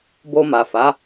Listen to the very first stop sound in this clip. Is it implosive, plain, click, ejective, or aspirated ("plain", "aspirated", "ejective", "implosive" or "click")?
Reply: plain